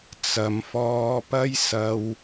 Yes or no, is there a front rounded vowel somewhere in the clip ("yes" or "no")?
no